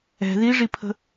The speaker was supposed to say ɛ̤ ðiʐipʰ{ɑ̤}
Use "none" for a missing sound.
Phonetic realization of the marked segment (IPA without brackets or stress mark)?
ə̤